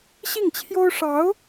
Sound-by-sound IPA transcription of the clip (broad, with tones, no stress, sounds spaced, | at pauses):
ɕ i˥˩ ŋ t͡ɕʰ j o˥ ʊ̯ ʂ ɑ˧˥ ʊ̯